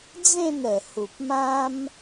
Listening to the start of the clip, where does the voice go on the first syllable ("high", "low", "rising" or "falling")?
falling